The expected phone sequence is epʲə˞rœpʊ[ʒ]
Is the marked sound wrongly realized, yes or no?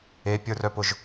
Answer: no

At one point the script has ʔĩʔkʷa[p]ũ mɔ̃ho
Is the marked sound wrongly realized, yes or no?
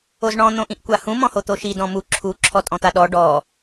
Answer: yes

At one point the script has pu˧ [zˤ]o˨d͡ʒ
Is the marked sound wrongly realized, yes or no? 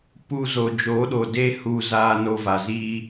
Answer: yes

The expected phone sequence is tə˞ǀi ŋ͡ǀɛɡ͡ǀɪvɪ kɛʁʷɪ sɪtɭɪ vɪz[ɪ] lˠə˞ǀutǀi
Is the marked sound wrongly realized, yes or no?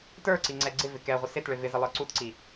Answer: no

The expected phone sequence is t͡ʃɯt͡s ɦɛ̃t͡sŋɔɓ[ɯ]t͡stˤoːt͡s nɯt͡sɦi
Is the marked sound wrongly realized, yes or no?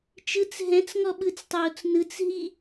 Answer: no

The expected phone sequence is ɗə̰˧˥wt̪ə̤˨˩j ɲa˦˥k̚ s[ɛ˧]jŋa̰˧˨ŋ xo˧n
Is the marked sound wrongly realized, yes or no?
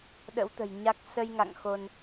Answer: yes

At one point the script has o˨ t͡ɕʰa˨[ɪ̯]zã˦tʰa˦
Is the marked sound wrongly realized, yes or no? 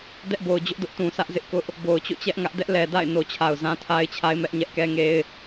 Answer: yes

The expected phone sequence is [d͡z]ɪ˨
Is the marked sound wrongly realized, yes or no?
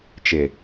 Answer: yes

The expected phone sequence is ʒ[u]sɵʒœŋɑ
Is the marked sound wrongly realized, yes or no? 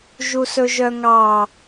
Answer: no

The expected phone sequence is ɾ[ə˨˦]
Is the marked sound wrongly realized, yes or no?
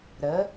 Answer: no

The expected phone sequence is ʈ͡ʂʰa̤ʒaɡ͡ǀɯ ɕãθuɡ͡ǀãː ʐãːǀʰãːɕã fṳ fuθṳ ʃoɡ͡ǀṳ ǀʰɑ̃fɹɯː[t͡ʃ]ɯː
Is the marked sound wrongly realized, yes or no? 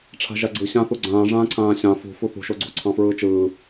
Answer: no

